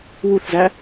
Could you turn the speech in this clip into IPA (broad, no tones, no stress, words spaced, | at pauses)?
wuθzæ